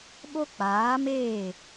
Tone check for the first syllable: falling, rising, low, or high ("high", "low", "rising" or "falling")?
high